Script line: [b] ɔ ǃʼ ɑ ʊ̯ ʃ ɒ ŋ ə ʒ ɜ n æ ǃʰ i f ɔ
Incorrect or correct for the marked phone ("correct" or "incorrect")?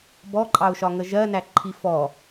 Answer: correct